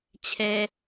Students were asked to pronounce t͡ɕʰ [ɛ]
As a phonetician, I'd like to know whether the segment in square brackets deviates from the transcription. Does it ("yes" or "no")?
yes